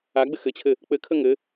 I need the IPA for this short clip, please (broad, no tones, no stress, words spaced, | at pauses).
aɡ͡bɘ xɘt͡ɕʰɘ | k͡pɘkʰə ŋɘ